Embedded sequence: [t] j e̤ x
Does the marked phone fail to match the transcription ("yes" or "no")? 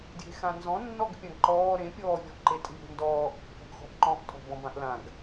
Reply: yes